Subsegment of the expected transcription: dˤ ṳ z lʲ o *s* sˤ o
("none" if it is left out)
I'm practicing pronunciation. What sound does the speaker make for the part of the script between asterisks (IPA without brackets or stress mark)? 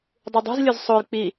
z